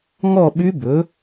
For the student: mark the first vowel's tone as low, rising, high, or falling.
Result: falling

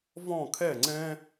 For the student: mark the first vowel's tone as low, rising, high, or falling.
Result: falling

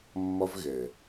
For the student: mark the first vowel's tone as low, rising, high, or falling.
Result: high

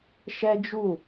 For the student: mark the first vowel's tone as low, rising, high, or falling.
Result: high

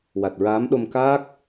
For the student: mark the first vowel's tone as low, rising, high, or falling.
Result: low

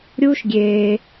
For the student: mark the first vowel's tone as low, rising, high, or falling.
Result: high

